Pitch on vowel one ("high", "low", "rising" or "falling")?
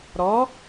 rising